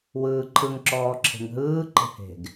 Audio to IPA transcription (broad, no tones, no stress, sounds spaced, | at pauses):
w ɯː ǃʰ ɯ ŋ ǁ ɔː ǁʰ e̤ ŋ ɦ ɯː ǃ e̤ h e̤ ɡ